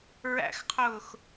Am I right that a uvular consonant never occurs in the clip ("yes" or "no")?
no